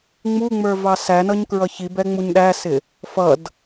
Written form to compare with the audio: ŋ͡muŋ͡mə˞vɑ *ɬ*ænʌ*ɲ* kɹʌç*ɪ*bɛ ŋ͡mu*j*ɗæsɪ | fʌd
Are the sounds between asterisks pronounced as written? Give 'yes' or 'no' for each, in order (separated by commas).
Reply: no, yes, no, no